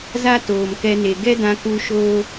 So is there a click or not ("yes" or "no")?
no